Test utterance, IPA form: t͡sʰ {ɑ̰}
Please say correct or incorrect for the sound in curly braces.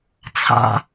correct